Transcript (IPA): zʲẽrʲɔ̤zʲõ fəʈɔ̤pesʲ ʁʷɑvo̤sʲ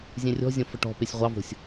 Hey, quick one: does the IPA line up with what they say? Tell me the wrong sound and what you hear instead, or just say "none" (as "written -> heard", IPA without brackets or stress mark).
none